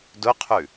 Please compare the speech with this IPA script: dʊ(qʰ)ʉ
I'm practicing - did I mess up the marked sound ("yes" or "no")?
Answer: no